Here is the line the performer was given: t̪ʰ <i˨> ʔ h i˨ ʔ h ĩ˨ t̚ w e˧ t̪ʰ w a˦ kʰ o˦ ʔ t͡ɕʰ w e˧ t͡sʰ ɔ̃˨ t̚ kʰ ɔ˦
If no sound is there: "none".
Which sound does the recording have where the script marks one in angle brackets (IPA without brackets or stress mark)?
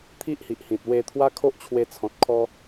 i˦